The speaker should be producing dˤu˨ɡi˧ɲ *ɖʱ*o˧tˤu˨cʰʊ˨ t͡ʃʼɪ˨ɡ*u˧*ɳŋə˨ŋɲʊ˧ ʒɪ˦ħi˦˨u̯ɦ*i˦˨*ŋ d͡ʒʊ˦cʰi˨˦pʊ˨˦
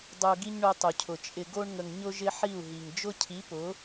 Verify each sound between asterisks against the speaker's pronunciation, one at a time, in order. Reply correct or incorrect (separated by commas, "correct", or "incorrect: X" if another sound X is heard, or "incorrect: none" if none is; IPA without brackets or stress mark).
incorrect: ɳ, incorrect: o˧, incorrect: i˨